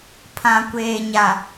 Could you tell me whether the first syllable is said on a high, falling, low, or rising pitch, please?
low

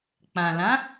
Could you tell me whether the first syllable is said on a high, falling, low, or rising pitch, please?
low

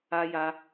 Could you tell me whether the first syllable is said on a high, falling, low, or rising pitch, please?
high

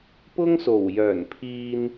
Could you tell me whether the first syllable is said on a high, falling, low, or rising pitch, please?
high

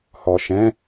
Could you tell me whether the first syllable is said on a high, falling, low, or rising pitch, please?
low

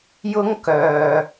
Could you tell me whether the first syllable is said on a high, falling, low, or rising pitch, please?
high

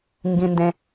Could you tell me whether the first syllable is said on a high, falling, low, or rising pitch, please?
high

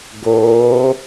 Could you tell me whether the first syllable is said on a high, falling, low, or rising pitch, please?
rising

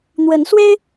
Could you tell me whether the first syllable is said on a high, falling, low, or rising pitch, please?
rising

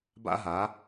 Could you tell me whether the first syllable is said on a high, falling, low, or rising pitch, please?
high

